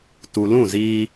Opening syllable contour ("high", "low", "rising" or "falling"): low